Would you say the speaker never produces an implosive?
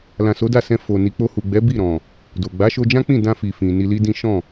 yes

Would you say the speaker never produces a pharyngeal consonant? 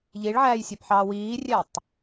no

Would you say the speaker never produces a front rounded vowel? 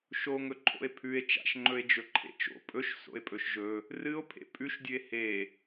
yes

